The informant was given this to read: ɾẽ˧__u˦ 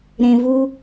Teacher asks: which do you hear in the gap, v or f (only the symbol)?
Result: v